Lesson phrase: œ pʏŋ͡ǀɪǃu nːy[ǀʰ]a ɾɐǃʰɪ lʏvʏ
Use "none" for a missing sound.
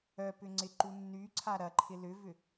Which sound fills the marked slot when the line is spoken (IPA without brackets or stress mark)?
ǀʰ